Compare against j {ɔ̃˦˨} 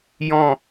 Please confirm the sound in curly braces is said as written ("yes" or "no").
yes